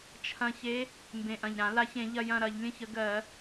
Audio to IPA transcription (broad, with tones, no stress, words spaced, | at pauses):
t͡ʃʰɐ̃˨˩çe˨˦ | mbẽ˨˩ʔɐ̃˨˩ʎɾã˧˩˧ la˨˦ç ẽ˧˩˧ʎɐ˦˨jɐ̃˦˨ ɾɐ˧˩˧ʎlʲə̃˦˨çə˨˦ɡɜ˧˩˧